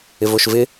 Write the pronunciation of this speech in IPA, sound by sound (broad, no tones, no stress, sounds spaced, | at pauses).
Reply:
ɪ v o ʃ v ɪ